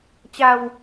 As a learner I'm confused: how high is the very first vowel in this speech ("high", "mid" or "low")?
low